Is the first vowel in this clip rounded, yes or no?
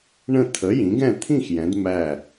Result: no